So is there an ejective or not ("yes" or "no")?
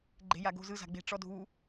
no